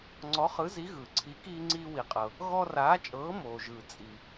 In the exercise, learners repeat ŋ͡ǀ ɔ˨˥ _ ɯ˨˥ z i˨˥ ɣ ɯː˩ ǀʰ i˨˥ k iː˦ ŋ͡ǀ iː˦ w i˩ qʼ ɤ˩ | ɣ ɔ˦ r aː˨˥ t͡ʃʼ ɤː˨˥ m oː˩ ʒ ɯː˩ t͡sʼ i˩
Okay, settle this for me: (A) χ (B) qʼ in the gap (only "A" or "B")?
A